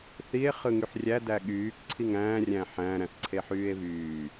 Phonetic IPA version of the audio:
θ i e̯ χ ɯ ŋ y ħ rʲ æ d æ ɠ yː k ǀʰ i ŋ æ̃ː rʲ æ̃ ħ æ̃ ɾ æ̃ θ ǀʰ e ħ yː e̯ v yː

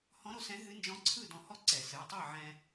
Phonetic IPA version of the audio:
h ɔ̃˧˥ ɾ o˥˨ s ɛ̃˧˥ ɦ ɨ˧˥ n d͡ʒ ɔ̃˧˥ ǀʰ ɯ˥˨ d ɔ̃˧ h ɔ˥˨ ǀ ɛ˨˩˦ s ɨ˩˧˩ tˤ ɨ˥˨ ʕ ɛ̃˧

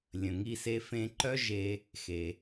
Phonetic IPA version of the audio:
lʲ ə̃˩ ŋ i˧ s e˧ f ẽ˧ ǃ œ˥ ʒ e˧ | x e˩

